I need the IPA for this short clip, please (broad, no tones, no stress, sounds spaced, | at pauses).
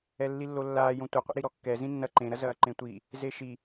ɛ lː i lː o lː aː j õ tʷ ɘ qʷ ḛ ɾ i ɾ ɔ kː ɛ z ĩ nː ɐ ǃ ẽ ɾ ɐ z ɐː ǃ ẽ tʷ i | z e ʃ i